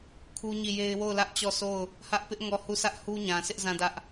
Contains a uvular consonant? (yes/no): no